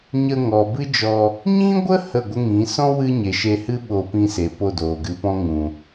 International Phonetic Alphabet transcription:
ɲ ə˧ ŋ ɔ˨ b ɨ˦ d͡ʒ ɔ˧ | ɲ ĩ˦ ɡʷ ə˦ h ə˦˨ ɡʷ ə˦ ŋ ĩ˨˦ s ɔ̃˦ w ɨ˦ ɲ e˨ ʃ e˧ h ɨ˦ ɓ o˧ p ĩ˧ s e˨ p o˦˨ d oː˨ ɡ ɨ˧ p ɔ̃˦ ŋ ũ˨

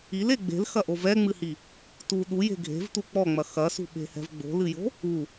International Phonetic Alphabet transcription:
i l e ɡ͡b e̤ l x ɐ ʔ o v ɛ ŋ͡m ɨ h i | t u ɗ u j e̤ ɡʱ e̤ v t u k͡p ɔ ŋ͡m ɐ x ɐ s ṳ ɓ e̤ h ɛ̤ v ɡ͡b o̤ l ɨ j o̤ | u

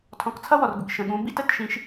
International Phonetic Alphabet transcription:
tʰ ɔ̃˨ k t͡sʰ ʌ˦ w ɔ˨ r ɡʷ ḭ˨ k ʃ ə̃˨ ɠ ũ˨˦ b ḭ˦ t ə˦˨ t ʃ ĩ˨˦ ʃ

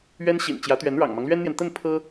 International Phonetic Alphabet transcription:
ɥ ɛ˥ n ɕ ḭ˨˩ n t͡ɕ j ä˧˥ t̪ ɥ ɛ˧˥ n ɻ ɑ̰˨˩ ŋ m ɑ˦ ŋ l ɥ ɛ˥ n n̪ j ɛ˨ n t̪ ə˥˩ n pʰ ɤ˥

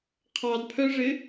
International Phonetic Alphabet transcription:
qʰ ɑ d pʰ œ ʐ ɪ

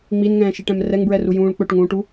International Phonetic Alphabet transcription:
ŋ͡m i n ŋ ɛ̃ː ʃ i ʈ ɛ̃ m r ɛ ŋ b ɹ ɛ r u j ũː ɭ k͡p ɵ ʈ ŋ ũː ʈ u

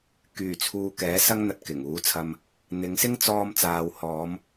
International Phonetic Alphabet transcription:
k yː˨˩ t͡sʰ uː˨ k ɛː˨˥ s ɐ˥ ŋ n̪ ɐ˧ t̚ k ɪ˨˩ ŋ uː˨˥ t͡sʰ ɐ˧ m | n̪ ɪ˨˧ ŋ s ɪ˥ ŋ t͡s ɔː˧ m t͡s aː˨ w h ɔː˨˧ m

